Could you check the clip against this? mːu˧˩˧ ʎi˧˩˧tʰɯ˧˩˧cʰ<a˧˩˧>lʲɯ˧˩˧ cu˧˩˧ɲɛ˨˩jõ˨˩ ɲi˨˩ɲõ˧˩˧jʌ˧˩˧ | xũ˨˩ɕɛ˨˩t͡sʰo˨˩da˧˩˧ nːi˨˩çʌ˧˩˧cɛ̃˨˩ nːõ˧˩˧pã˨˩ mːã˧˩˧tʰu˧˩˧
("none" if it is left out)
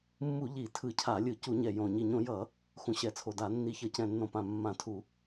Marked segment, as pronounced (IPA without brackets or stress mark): a˧˩˧